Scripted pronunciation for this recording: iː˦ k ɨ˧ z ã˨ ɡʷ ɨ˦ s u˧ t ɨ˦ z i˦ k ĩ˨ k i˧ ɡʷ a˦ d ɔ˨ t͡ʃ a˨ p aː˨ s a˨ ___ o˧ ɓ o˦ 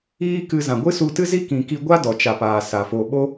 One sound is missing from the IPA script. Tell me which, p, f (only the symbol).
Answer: f